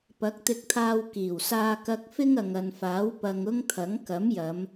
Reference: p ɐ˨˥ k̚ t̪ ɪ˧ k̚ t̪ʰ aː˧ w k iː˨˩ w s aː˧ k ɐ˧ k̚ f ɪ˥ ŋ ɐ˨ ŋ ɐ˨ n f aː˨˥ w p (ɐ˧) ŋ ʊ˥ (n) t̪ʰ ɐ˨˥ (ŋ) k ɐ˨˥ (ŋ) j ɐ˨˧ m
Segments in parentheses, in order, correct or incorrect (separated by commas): correct, incorrect, correct, incorrect